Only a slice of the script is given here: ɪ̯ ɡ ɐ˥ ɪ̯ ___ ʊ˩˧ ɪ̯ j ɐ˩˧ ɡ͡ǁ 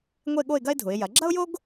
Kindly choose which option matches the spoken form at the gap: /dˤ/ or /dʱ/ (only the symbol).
dʱ